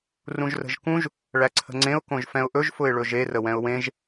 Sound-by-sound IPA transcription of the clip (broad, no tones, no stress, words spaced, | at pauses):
rũʒrə̤ʒkũʒ | ɭæǀʰə̤ŋ͡ǀẽʊ̯ kõʒfɛ̃ʊ̯ʔɵʒ fʊɪ̯ɭɵʒe rəwɛ̃ʊ̯wẽʒ